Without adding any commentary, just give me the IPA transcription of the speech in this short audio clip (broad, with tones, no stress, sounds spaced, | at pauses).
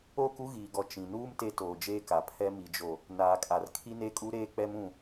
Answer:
o˦˨ k u˦ ɣ iː˨ ɡ ɔ˨ t͡ʃ ĩ˨ n uː˦ m t e˦ t oː˨ d͡ʒ eː˦ k a˨ pʰ ɛ˦ m i˨ d͡ʒ o˨ | n aː˨ kʼ a˨ r kʰ i˦ n e˦ kʼ u˦ ɾ eː˦ k͡p ɛ˦ m ũ˦˨